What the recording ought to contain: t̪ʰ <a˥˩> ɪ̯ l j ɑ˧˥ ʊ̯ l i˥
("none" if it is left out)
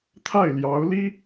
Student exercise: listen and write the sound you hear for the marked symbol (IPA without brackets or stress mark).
a˥˩